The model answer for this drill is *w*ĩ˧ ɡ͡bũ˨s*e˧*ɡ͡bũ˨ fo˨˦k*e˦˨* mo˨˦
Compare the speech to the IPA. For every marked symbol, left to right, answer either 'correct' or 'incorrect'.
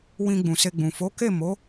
correct, correct, correct

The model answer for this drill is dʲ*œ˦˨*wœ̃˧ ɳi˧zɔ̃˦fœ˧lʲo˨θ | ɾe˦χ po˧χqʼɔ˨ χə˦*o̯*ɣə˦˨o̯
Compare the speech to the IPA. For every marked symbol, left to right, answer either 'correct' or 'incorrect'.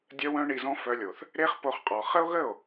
incorrect: œ˧, correct

